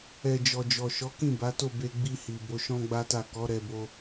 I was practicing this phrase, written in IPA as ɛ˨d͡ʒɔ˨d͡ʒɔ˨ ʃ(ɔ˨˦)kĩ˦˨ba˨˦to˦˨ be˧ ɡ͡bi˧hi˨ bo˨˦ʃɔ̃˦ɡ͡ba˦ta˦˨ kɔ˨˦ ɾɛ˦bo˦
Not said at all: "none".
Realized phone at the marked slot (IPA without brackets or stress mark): ɔ˨˦